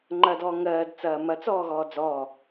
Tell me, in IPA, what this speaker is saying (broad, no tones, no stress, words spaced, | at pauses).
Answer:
ŋ͡ǃɐdɔː ŋɜːd t͡sɐːmɐ t͡sɔːɣɔːd͡zɔː